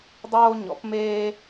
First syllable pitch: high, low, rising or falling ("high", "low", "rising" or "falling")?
high